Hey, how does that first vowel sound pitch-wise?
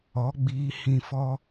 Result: rising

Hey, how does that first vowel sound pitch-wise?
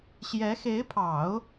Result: rising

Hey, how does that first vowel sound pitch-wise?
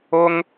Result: high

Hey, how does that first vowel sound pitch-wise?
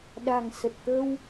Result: low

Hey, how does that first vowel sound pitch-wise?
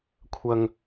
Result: low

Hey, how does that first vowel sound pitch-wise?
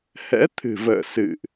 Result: rising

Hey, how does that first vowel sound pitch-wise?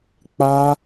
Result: high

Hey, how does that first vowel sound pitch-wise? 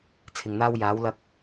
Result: low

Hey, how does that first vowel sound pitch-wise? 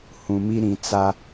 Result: low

